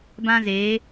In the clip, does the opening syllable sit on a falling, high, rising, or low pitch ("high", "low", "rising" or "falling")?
high